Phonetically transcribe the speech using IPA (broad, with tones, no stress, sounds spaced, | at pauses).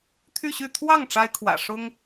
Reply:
t̪ʰ y˥˧ ɕ y˥˧ t̪ʰ w ɑ˥˩ ŋ ʈ͡ʂ a˥ ɪ̯ kʰ w ä̰˨˩ ʂ ʊ˥ ŋ